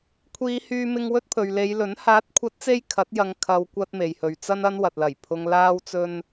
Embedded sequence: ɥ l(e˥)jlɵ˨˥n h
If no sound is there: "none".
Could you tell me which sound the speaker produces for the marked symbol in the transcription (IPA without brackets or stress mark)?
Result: e˨˧